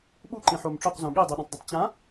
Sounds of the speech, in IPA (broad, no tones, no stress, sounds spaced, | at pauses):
ɓ u ǃ ĩ ħ o m ʈ͡ʂ o q z õ ɠ i dˤ i ɗ õ tˤ dˤ ɐ tˤ t͡ɕ ã